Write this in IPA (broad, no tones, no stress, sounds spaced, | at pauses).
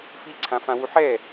f i ǀʰ ã f ã w u ħ ɛ